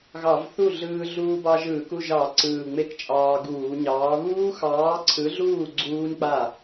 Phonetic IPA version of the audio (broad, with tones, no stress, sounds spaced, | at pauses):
ɣ ɑ˧˩˧ v θ u˥˩ ɮ ɯː˧ ɮ uː˧ b ɑ˧ ʒ ɯː˧˩˧ k u˥˩ ʒ ɑ˧˩˧ ǀ ɯː˨˩ ŋ͡m e˧ k t͡ʃʼ ɑː˧ ɡ uː˧˩˧ ɲ ɑː˨˥ β uː˦˥ x ɑː˨˥ ǀʰ ɯ˨˥ ɮ uː˥˩ ɡ͡ǀ uː˦˥ n k͡p a˥˩